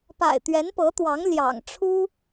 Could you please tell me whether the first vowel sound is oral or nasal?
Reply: oral